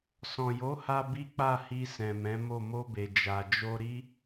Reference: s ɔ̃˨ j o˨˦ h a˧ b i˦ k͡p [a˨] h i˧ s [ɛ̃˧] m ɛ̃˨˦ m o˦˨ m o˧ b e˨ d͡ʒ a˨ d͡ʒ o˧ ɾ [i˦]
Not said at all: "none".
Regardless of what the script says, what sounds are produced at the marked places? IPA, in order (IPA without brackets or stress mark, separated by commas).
a˦˨, ɛ̃˨, i˦